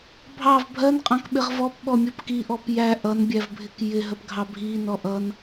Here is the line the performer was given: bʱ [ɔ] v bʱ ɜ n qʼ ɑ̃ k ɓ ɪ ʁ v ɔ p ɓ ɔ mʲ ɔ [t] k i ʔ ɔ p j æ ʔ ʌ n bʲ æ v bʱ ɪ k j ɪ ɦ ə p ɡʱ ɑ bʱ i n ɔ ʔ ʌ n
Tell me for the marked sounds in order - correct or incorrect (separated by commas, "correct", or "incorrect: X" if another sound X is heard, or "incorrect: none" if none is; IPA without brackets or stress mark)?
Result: incorrect: ɑ, incorrect: p